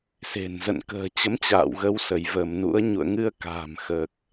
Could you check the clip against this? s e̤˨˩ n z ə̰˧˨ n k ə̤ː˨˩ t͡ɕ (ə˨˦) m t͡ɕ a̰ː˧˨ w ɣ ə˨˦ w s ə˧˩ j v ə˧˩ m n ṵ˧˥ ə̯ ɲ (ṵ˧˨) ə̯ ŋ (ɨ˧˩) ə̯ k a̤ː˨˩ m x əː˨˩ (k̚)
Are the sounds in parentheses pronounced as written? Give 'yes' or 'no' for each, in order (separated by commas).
yes, yes, no, yes